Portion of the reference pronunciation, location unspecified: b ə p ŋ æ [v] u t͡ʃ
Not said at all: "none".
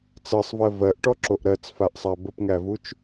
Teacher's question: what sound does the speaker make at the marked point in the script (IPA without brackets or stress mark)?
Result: v